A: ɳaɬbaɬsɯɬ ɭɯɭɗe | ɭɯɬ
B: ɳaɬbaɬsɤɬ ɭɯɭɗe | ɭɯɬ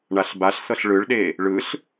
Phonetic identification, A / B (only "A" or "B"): B